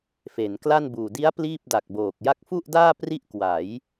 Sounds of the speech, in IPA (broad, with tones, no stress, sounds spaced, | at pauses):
f e˩˦ n k l a˥˩ n b uː˨˩ d i˦˥ a̯ p l iː˥˩ p̚ d a˨˩ k̚ b oː˨˩ k̚ j a˦˥ k̚ f u˥˩ ʔ d aː˥˩ p r i˥˩ ʔ k w a˩˦ j